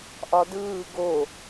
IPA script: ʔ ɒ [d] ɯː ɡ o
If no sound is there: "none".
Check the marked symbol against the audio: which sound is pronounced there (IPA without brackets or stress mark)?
d